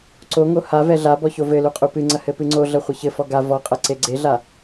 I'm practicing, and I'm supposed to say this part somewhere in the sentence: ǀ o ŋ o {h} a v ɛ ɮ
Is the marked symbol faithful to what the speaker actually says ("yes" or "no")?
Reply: yes